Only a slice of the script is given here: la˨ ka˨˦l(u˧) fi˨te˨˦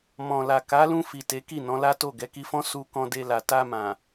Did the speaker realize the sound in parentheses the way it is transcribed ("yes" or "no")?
no